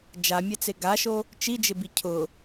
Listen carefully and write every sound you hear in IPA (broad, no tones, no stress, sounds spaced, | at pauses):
d͡ʒ a mʲ ɛ t͡s e ɡ a ʃ o | t͡ʃ i d͡ʒ ɪ b i cʰ ʊ